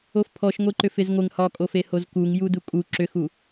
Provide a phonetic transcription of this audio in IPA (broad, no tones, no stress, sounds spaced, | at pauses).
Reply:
o f pʰ ɔ ʃ ŋʷ e ǃ ʏ f ɪ z ŋʷ ɪ ŋ h ɒ kʼ o f e h o z k u ŋ j u d u kʼ u ǁ ʏ x u